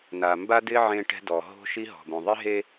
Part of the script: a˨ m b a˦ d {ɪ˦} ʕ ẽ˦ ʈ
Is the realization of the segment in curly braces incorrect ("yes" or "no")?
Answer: no